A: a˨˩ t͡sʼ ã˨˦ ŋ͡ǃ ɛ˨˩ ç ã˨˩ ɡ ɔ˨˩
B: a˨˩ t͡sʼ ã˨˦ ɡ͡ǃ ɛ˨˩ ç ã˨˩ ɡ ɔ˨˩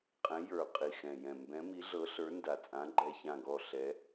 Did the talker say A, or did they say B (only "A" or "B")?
B